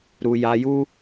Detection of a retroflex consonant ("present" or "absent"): absent